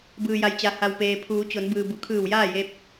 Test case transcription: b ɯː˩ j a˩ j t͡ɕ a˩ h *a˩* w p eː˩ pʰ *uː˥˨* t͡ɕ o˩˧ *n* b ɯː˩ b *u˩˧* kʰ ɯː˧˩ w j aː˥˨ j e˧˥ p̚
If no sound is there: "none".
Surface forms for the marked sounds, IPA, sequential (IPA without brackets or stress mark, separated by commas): a˩, uː˩˧, n, u˩˧